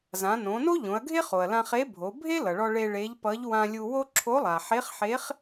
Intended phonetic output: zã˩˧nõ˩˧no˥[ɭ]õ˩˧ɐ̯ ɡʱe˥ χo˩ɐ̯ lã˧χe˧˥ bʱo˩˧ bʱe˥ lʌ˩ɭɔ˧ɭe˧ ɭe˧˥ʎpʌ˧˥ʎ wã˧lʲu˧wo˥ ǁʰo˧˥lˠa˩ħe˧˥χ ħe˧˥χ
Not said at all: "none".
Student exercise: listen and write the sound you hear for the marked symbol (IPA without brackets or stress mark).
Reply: ʎ